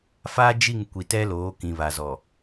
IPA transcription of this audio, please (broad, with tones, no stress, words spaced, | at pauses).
fa˦ d͡ʒi˦˨ŋkʷi˨tɛ˦loː˨˦ kĩ˨βa˨zɔ˨